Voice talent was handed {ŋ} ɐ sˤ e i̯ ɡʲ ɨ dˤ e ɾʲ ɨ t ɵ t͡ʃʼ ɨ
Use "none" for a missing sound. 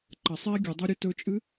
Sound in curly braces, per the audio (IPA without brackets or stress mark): ǃ